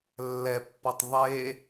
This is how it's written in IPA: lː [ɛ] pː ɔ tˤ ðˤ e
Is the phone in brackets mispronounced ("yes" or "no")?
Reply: no